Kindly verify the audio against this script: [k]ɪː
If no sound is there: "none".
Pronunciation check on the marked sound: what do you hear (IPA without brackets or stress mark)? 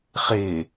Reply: χ